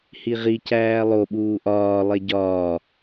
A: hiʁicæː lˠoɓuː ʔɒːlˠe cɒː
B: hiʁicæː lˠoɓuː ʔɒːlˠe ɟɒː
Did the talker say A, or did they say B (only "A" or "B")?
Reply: B